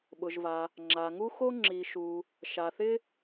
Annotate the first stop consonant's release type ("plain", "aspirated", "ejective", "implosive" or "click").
implosive